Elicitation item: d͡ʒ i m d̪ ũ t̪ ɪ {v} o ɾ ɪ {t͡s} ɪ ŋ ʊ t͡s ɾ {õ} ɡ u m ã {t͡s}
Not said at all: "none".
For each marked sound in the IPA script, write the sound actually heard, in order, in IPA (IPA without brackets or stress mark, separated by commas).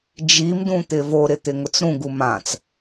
v, t̪, ũ, t͡s